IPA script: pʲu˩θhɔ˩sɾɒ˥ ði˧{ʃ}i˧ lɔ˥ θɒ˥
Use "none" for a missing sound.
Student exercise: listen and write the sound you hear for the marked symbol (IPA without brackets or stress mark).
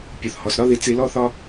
t͡s